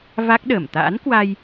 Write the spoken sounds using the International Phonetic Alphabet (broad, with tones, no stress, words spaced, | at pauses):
va˦˥k̚ɗəː˧˩m t̪a̰ː˧˥nkwa˧j